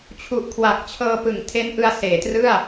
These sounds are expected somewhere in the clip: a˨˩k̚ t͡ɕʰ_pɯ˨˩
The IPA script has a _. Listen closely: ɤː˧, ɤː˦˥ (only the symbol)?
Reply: ɤː˧